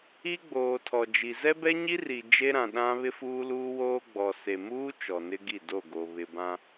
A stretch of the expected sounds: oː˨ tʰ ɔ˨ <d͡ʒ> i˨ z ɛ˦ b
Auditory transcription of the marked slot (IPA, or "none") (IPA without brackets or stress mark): d͡ʒ